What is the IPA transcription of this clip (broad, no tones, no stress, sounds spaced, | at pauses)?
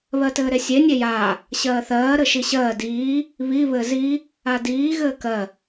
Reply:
β ɜ t ɘː ɾ e sʲ e nʲ e j aː | ɕ ɜː θ ɜː ɾ ɘ ʃ i ɕ ɜː d iː | β i β ɘ z i | a d iː ɣ ɘː k ɜ